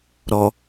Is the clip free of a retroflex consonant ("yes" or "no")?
yes